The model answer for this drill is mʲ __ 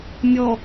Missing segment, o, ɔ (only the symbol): ɔ